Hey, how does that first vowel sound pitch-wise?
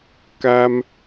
high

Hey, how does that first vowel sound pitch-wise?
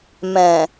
low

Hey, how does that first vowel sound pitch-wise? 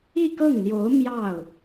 falling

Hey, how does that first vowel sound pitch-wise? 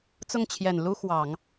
falling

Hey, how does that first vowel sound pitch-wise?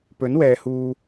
rising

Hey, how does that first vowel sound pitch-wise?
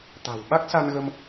low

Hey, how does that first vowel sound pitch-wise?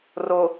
low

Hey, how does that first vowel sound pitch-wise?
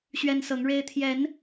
high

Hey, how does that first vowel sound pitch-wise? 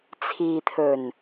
low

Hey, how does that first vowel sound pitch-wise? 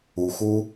low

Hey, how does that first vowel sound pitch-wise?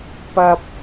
low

